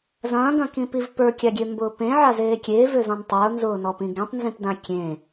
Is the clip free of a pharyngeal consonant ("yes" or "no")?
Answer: no